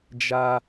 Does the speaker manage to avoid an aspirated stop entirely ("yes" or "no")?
yes